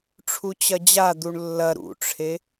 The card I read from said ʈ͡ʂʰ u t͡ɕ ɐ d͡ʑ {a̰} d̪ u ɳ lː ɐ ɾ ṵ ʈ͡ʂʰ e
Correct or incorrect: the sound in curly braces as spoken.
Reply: incorrect: a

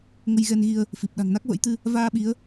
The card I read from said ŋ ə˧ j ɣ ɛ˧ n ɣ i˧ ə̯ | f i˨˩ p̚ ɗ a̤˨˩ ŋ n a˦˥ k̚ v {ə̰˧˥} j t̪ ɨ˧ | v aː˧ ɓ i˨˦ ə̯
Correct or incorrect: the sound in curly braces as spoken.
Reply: correct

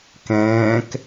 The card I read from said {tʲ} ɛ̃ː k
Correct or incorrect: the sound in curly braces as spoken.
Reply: incorrect: k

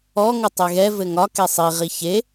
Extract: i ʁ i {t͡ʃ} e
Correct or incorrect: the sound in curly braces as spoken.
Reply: incorrect: ç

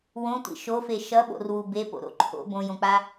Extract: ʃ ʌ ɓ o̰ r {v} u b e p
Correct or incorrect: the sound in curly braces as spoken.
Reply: incorrect: w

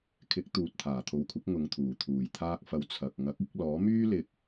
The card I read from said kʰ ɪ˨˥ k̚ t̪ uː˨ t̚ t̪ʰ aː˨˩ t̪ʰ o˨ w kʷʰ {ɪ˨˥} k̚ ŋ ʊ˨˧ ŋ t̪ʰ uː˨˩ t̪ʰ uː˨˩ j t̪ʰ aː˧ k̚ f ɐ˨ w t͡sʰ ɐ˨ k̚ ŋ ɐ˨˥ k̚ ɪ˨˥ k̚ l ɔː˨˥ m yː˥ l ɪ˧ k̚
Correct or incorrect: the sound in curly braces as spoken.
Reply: correct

